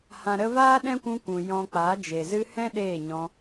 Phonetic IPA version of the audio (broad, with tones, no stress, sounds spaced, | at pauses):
h ã˨ ɾ ə˧ v aː˦ ɗ ɛ̃˦ kʷ ũ˧ kʷ ũ˨ j ɔ̃˧ k͡p a˨˦ d͡ʒ e˨ z ɨ˧ h ɛ̃˦ ɗ eː˦˨ ɲ ɔ̃˧